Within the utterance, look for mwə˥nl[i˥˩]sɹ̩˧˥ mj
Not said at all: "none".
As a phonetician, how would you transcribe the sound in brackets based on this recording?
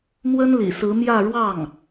ḭ˨˩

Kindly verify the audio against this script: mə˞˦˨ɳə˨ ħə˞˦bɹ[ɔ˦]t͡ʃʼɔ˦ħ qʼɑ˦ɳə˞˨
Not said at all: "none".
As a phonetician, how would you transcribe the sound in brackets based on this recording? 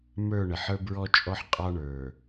ɔ˦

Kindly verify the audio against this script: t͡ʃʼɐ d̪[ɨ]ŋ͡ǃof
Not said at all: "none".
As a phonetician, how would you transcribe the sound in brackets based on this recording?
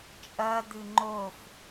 ɨ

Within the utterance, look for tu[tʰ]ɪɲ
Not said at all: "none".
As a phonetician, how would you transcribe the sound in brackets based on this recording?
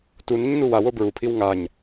n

